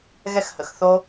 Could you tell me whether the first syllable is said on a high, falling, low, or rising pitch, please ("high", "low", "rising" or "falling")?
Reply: high